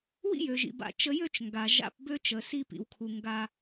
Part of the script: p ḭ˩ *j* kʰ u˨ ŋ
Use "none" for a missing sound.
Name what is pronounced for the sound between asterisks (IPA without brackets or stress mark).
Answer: w